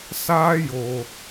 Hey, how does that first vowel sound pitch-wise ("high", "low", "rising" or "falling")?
high